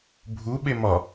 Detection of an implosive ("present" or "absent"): present